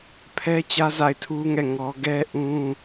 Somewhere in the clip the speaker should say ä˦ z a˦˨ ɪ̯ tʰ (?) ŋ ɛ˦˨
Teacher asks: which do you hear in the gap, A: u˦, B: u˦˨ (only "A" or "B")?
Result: A